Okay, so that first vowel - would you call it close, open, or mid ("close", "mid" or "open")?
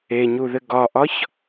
mid